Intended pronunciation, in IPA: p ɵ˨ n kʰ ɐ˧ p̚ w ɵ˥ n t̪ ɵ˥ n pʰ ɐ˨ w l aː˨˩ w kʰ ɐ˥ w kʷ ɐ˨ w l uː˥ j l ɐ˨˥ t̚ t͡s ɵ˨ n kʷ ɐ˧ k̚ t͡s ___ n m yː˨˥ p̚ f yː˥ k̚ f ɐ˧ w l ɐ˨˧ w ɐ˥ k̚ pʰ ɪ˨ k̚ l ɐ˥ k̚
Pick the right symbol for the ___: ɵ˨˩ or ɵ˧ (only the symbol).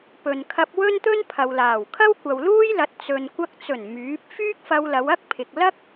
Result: ɵ˨˩